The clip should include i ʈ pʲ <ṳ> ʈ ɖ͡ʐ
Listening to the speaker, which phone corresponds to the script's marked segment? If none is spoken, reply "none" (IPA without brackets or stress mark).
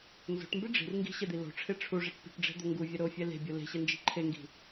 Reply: ṳ